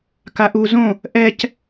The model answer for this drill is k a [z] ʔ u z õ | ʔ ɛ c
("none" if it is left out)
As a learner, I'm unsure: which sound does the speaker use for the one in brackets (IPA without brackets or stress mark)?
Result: none